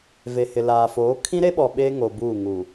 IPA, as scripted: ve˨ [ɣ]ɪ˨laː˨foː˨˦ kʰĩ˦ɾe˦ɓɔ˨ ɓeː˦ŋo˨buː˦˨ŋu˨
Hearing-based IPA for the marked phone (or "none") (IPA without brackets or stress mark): h